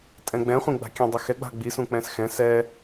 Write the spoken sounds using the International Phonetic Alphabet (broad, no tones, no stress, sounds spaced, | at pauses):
tʼ ɛ̃ ɡ͡b ɛ̃ χʷ ĩ ɡ͡b a̤ kʲ ɛ̃ dˤ ʏ x ɛ ɡ͡b a̤ ɡ͡b i s ũ k͡p ɛ̃ s x ɛ̃ s ɛ